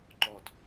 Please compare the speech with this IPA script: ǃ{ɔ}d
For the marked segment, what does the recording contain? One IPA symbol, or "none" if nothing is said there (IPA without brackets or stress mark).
ɔ